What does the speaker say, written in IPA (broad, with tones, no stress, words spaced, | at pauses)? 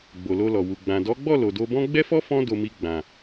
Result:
ɡ͡bo˨lo˧lɔ˨wu˨ ɡ͡bã˨ dɔ˨˦ɡ͡bɔ˦˨ lo˨do˧bɔ̃˦ ɡ͡bɛ˦fɔ˦fɔ̃˧ do˧mi˧ ɡ͡bã˨